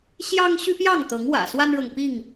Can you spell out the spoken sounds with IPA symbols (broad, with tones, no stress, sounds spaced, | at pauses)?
ɕ j ɑ˦ ŋ ɕ y˦ p j ɑ˥˨ ŋ t̪ ɤ˨˦ ŋ w ä̰˨˩ s w a˦ n ɻ ɤ˨ ŋ p i˥˨ ŋ